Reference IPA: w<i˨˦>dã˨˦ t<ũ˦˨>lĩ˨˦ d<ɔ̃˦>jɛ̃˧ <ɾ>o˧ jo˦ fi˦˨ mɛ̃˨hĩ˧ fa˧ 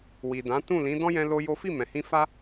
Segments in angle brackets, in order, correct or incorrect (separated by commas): incorrect, correct, correct, incorrect